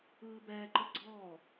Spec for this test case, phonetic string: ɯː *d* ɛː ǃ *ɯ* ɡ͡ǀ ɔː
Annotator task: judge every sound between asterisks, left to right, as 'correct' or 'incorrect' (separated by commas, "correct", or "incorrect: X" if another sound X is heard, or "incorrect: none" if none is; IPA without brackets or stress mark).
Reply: incorrect: b, correct